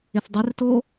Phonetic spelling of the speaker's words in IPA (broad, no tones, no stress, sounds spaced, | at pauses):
ɪ θ dˤ ɪ r t o